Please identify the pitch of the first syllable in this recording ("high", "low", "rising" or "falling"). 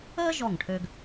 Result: high